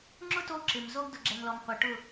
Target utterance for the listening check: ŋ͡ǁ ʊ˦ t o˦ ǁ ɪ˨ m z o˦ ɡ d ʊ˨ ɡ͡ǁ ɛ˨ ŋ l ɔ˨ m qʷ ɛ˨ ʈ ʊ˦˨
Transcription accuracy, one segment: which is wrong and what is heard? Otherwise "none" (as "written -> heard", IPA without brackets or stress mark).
none